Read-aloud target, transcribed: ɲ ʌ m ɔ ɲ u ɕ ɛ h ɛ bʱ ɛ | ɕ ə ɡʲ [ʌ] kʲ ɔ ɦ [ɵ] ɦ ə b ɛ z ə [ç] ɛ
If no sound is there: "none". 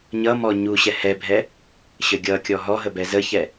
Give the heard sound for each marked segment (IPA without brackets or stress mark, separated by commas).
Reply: ʌ, ɔ, ç